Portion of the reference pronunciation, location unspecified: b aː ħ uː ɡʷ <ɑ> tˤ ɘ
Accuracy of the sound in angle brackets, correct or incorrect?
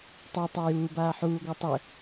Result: incorrect: a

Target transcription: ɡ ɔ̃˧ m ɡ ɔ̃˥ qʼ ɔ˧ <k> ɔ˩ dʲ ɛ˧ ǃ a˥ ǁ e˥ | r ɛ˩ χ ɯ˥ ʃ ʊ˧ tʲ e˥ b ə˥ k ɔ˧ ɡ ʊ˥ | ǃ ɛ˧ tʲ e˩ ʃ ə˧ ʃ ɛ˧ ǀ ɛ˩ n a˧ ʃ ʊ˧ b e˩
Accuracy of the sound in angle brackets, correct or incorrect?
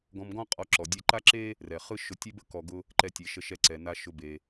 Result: incorrect: ǁ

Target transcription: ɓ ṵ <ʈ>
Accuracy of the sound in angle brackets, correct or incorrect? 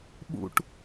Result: correct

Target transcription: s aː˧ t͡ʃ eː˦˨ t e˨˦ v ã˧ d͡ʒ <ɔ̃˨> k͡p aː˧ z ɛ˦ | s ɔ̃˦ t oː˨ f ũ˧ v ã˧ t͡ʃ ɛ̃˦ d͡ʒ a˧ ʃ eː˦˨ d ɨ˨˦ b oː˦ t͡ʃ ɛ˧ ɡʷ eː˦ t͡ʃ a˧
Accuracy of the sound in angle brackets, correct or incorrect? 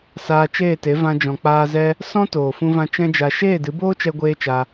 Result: correct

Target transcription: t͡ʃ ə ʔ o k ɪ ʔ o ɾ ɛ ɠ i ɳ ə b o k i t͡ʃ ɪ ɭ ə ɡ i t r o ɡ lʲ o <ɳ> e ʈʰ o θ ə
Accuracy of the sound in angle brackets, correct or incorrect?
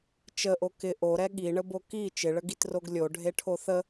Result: incorrect: ɖʱ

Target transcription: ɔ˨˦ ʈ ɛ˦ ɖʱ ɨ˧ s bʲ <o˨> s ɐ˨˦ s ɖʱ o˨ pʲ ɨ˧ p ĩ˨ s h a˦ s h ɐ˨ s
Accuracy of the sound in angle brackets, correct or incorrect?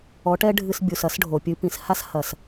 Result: incorrect: u˨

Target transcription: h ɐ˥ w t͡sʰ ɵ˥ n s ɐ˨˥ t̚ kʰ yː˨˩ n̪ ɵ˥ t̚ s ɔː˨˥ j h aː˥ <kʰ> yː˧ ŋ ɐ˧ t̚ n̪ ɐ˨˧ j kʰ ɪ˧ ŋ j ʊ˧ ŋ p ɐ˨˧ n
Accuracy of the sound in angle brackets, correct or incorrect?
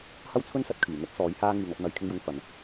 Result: incorrect: ŋ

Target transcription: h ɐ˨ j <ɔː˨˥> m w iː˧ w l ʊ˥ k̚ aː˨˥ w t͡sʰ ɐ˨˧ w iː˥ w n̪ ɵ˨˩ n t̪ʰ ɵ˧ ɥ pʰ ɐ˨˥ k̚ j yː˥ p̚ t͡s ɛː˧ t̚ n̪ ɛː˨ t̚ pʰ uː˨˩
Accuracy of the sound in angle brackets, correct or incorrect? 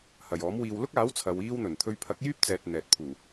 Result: correct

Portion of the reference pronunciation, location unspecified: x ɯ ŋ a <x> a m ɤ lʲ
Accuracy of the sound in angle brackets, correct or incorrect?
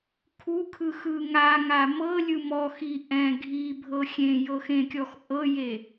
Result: incorrect: ŋ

